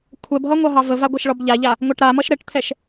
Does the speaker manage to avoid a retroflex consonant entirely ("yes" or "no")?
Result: no